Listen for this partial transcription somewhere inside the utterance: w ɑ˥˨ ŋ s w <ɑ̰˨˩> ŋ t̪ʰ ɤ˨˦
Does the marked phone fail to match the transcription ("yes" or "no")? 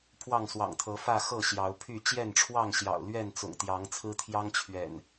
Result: no